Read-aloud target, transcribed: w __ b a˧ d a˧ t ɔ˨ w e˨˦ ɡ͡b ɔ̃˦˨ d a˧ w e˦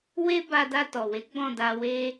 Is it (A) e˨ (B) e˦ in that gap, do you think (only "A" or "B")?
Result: B